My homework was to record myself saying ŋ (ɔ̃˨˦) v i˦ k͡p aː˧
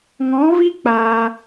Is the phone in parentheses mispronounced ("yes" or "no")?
no